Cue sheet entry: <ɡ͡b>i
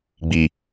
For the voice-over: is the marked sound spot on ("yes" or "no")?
yes